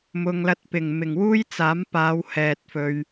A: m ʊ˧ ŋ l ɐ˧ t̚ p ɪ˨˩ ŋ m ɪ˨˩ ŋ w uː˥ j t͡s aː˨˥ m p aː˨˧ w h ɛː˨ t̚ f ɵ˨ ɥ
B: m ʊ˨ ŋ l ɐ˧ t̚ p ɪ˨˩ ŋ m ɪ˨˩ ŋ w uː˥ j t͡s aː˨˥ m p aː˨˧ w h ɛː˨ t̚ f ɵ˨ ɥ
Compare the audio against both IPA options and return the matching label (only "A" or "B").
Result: B